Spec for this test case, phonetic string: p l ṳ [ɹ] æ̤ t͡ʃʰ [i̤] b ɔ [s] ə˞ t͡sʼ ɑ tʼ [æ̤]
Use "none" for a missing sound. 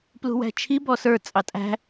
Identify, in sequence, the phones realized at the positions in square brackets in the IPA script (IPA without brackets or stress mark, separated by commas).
w, i, s, æ̤